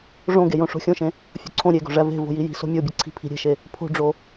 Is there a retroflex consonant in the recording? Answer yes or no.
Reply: yes